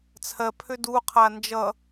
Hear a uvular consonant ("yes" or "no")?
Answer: yes